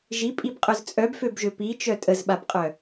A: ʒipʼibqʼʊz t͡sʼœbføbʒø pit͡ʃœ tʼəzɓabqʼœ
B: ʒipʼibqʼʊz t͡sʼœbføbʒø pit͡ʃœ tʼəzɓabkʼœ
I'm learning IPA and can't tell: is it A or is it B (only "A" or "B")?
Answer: A